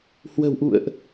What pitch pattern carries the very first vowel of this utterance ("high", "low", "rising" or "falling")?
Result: low